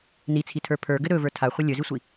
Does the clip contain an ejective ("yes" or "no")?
no